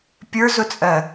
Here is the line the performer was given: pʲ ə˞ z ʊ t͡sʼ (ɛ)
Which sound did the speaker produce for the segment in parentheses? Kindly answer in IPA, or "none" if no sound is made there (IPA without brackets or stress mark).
ɜ